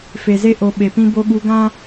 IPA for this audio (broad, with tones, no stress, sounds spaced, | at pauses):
f e˨ z e˧ ʔ o˨ ɓ e˨ p ĩ˧ b o˧ ɠ u˧ ɡ ã˦